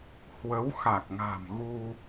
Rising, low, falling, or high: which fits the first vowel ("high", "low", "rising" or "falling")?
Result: rising